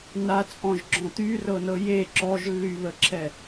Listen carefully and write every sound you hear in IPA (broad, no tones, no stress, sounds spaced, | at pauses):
n a t͡sʼ ɔ̃ ʒ ɡ͡ǁ ɔ̃ t̪ y r ɤ n ɤ j e ǁ ɔ ʒ lː y β ə ǁʰ ɛ